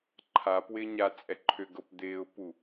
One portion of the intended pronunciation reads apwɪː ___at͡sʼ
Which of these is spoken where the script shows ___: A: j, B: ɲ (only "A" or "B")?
B